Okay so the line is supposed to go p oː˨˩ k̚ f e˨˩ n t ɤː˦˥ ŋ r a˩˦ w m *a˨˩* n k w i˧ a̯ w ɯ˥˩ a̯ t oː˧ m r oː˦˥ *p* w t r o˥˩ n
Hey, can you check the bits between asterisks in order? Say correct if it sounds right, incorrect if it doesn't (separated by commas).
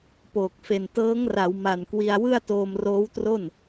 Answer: correct, incorrect